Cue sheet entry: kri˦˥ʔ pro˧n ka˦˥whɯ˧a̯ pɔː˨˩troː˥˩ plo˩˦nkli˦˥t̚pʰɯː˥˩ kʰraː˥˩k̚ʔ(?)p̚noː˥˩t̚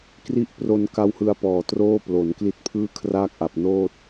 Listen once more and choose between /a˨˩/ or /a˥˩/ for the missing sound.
a˨˩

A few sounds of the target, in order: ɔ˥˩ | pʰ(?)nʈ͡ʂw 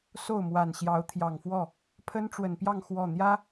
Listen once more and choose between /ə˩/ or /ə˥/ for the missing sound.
ə˥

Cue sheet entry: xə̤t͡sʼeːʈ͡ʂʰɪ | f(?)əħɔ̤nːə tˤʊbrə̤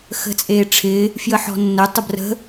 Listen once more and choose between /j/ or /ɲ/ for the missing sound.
j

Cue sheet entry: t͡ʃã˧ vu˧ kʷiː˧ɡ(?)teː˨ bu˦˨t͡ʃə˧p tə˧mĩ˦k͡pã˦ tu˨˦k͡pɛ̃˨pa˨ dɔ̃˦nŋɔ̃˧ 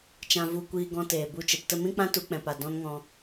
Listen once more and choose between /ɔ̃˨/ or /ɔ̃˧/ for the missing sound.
ɔ̃˧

